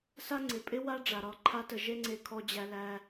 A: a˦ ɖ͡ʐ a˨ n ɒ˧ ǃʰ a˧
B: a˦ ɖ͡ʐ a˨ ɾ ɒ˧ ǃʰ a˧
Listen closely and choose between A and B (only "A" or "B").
B